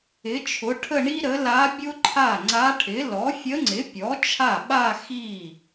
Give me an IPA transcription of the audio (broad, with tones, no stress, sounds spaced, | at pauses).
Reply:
ɪ˩˥ t͡ʃʰ ʊ˩˥ ʈʰ ə˥˧ ɳ i˥ ɾ ə˩˥ l a˧˥ bʲ ʊ˥ ǃʰ a˥˩ ŋ͡ǀ a˧˥ ʈʰ ɪ˩˥ l ɔ˩˥ fʲ ə˧˥ ŋ͡ǀ ɪ˩˥ pʲ ɔ˩˥ t͡ʃʰ a˥˩ ɓ a˥˧ x i˥˩